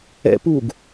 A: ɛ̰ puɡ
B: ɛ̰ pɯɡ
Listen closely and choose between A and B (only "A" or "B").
A